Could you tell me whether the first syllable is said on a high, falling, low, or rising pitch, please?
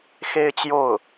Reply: high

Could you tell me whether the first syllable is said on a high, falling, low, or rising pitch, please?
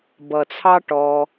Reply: low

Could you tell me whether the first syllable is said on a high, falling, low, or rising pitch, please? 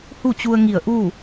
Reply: falling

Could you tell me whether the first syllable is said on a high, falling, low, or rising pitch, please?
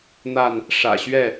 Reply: falling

